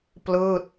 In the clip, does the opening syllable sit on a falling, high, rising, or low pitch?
falling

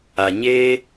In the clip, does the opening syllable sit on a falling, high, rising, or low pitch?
low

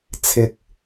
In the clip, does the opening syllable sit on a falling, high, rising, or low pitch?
low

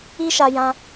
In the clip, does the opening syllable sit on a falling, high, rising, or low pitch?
high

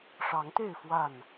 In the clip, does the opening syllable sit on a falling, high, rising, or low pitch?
rising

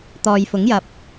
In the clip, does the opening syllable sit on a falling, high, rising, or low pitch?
low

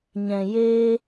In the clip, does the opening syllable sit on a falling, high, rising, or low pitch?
low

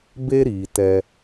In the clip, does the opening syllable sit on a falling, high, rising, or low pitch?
high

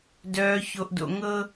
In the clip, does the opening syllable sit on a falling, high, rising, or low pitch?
low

